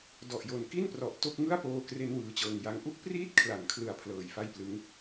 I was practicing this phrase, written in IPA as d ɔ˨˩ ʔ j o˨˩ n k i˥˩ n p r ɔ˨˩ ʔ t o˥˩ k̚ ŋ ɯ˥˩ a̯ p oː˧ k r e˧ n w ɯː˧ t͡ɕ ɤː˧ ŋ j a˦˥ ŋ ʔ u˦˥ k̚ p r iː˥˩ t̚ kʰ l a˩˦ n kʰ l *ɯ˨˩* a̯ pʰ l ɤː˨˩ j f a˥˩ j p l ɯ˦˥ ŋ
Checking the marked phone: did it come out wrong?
no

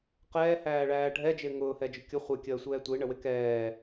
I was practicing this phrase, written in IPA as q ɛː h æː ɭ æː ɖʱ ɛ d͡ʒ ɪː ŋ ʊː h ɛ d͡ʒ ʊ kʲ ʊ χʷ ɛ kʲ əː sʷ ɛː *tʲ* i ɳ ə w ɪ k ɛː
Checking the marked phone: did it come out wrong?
yes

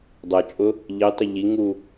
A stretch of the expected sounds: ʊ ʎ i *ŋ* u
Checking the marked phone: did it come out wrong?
no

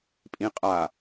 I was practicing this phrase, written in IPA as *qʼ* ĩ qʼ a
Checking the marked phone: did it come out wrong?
yes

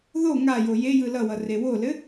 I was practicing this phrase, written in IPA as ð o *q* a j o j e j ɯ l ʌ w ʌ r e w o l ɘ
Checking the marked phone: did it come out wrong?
yes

